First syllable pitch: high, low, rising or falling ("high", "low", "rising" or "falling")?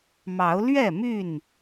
rising